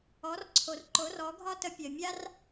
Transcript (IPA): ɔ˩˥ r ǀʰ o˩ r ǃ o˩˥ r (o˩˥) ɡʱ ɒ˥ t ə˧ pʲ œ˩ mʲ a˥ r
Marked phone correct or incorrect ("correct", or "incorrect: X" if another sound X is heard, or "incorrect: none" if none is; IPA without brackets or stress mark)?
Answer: incorrect: ɔ˩˥